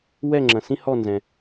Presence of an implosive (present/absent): absent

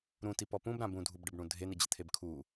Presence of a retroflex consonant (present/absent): present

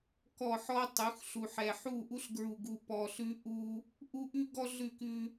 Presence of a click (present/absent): absent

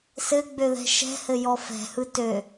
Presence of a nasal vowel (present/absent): absent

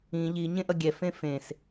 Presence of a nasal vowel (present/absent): present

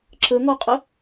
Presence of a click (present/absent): present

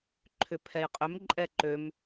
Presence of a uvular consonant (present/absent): present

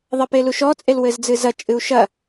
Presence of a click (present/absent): absent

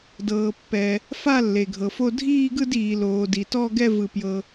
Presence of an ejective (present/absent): absent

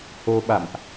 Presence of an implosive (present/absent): present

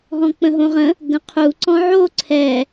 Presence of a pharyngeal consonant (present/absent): present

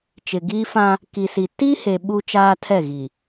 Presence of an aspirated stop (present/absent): present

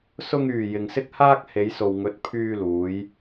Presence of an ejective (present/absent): absent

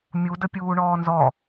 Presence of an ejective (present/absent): absent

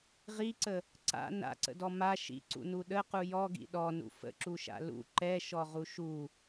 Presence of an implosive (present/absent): present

